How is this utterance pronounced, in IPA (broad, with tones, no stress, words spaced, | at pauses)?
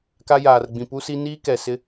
ka˦jaː˨rɡ͡bĩ˨ pu˦si˦ niː˦ kɛ˨sɪ˦